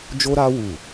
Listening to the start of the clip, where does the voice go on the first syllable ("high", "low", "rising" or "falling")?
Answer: high